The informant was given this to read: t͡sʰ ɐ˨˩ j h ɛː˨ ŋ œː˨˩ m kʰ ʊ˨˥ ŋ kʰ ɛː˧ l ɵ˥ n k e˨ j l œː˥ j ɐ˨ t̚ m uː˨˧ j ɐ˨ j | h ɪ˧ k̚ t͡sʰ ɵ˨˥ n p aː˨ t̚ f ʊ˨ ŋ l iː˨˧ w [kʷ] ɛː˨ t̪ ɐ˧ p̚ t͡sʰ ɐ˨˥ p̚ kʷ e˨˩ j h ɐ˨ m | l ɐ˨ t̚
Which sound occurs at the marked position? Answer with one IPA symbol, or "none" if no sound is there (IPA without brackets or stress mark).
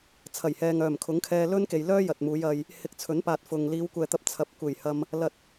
kʷ